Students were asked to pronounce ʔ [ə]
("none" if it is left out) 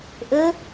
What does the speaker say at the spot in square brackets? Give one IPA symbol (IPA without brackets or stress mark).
ə